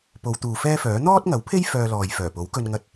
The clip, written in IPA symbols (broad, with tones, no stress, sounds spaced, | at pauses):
p o˨˧ w t̪ uː˨ f ɛː˥ f œː˨˥ n̪ ɔː˥ t̚ ŋ ɐ˨˥ w pʰ e˥ j f œː˧ l ɔː˨ j f œː˨˩ p o˨˥ w k ɵ˧ n ŋ ɐ˧ t̚